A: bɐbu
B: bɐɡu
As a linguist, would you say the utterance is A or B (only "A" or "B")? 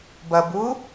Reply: A